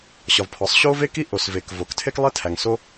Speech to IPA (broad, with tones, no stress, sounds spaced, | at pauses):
ɕ ɒ˩ v pʰ ɒ˩ sˤ ɕ o˥ v e˥ k i˥ ʔ o˩ s v e˩ k v o˩ k tʰ e˥ k lˠ e˥ tʰ æ˩ ŋ s o˥